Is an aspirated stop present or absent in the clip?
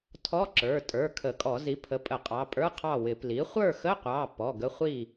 present